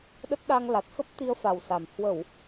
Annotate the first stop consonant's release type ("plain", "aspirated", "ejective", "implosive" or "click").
implosive